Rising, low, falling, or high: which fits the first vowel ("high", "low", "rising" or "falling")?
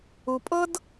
low